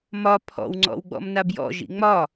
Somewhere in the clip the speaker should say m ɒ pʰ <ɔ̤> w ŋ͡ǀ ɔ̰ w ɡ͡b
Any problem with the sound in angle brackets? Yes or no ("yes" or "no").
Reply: yes